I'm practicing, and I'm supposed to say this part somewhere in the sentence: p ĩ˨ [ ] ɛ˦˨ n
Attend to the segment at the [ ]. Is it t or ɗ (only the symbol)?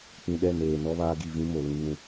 ɗ